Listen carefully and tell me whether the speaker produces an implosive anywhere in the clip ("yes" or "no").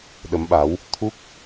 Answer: yes